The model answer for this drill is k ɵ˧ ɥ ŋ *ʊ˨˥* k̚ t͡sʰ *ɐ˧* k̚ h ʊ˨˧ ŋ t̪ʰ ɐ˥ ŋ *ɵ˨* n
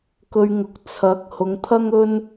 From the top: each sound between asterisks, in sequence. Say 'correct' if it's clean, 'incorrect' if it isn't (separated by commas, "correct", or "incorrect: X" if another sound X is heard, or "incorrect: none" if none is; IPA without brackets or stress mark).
correct, incorrect: ɐ˨˥, incorrect: ɵ˥